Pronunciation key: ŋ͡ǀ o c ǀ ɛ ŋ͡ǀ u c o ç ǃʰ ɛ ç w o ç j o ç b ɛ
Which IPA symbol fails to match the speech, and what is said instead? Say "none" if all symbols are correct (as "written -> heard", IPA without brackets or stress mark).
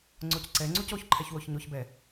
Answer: j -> ɲ